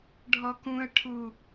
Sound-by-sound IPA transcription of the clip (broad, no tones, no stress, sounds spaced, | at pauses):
ɖʱ ɔ k ũ ə̯ ʈʰ u